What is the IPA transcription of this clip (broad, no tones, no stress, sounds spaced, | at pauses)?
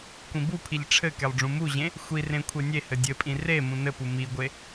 kʷ ĩ b u pʰ i ʎ ʈ͡ʂʰ ɘ k e lˠ ɖ͡ʐ ũ m u ʑ ẽ | xʷ i r ẽ kʷʰ e nʲ e h ɘ dʲ ɘ pʼ ĩ r e m ũ n ɘ p u m i ɡʷ e